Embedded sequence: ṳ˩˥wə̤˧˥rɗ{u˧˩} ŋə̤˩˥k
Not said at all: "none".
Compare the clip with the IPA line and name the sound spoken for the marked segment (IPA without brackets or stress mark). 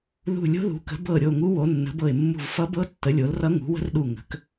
u˧˩